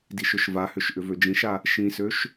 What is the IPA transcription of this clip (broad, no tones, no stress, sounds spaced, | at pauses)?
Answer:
d i ʃ ʏ ʃ v a h ʏ ʃ ʔ ʏ v ø d͡ʒ ĩ ʃ a | ʃ ĩ s ø ʃ